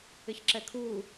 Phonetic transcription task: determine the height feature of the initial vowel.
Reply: high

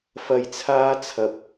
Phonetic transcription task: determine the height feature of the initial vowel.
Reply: low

